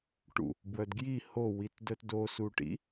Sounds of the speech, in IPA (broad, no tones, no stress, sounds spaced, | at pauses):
ʈ ṵ | b w œ d ɡ j i h o w i t d œ t d o s u ʈ ḭ